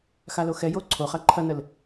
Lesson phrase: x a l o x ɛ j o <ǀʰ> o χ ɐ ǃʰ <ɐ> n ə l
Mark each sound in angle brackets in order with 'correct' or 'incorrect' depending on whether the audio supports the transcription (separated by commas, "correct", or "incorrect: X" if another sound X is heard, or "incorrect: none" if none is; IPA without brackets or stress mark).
correct, correct